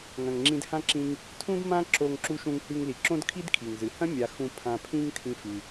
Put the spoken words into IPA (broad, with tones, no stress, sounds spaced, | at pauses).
ŋ ɐ̃˨ ŋ ŋ͡ǁ ĩ˧ d h ã˦ ǁ ĩ˧ ŋ | tʰ ũ˦ d m ã˦ ǁ o˧ ŋ ǁ u˧ ʃ ũ˧ ŋ h ʉ˧ ŋ l i˨ ǁ õ˦ d kʰ i˦ d kʰ i˨ ŋ z ɨ˨ h ɐ̃˦ mʲ a˧ x ũ˧ pʰ ã˧ pʰ ĩ˦ ŋ tʰ ĩ˦ f ʉ˧